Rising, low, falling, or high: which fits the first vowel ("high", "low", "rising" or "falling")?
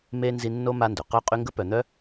high